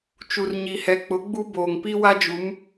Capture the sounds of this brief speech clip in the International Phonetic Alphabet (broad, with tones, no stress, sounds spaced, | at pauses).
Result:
t͡ʃ u˨ r ɲ i˨ h ɛ˨ k͡p ʊ˨˦ ɡ͡b u˦ b oː˨ ŋ p i˦ w a˦ d͡ʒ u˨˦ m